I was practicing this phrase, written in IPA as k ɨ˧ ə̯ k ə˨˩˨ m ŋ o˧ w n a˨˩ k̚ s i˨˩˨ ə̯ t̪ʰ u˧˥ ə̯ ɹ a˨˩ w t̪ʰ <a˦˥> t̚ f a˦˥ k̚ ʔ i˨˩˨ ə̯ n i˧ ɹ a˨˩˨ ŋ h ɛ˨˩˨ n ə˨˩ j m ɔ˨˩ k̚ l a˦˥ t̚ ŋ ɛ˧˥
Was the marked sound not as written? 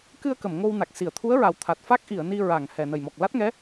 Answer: yes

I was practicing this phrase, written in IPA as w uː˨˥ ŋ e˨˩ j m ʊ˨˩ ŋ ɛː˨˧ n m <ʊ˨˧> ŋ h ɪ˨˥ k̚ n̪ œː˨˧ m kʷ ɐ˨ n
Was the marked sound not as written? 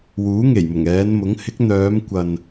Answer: yes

